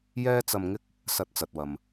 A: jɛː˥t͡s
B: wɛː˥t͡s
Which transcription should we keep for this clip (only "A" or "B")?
A